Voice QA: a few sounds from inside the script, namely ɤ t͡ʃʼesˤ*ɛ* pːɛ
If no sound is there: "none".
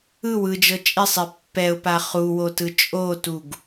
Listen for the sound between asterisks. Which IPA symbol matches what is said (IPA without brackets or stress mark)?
e